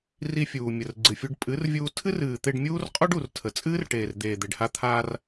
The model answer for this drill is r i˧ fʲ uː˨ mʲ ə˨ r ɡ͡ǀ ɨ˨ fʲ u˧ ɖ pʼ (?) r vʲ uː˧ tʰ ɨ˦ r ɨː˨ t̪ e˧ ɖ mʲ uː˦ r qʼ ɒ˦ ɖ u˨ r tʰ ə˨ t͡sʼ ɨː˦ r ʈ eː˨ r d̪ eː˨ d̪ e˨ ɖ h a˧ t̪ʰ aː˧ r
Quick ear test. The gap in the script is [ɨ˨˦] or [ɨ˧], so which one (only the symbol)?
ɨ˨˦